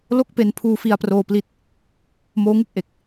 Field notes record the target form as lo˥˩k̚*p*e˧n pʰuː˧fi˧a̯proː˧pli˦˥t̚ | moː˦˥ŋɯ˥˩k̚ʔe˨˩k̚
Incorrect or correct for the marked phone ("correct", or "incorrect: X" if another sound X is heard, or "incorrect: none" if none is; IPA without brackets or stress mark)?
correct